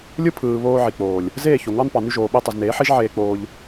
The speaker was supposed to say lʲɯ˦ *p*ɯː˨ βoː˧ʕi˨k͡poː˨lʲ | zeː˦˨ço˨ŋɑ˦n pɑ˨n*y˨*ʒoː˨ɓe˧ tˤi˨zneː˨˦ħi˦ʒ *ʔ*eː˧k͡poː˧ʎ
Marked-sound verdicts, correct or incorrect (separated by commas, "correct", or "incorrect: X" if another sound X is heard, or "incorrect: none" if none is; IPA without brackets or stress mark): incorrect: pʰ, incorrect: y˧, incorrect: ʕ